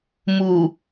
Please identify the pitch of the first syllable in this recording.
low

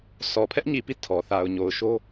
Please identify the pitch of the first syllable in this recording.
low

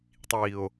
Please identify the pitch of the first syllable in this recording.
low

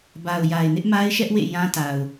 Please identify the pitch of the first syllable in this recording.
low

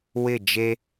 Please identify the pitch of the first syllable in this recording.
falling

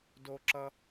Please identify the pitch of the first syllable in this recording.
high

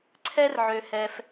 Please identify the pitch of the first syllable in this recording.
high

